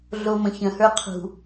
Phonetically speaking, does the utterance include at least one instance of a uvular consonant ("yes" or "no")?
yes